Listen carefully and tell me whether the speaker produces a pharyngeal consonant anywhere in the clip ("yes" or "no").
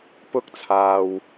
no